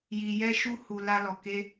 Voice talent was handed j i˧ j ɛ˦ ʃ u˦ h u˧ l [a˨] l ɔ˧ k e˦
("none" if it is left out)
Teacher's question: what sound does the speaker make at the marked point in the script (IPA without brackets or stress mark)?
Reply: a˦